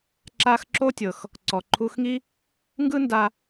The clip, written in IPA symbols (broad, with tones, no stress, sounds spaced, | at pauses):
ǁ a˧ x ǁ o˥ tʲ ɤ˩ x | ǀ ɔ˩ ǃʰ u˧ x ŋ i˥ | ŋ ɡ ɯ˥ n d a˧